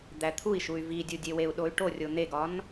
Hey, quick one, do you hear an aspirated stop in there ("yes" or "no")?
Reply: yes